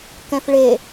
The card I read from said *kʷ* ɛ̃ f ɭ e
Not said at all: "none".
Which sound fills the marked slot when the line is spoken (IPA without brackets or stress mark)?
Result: k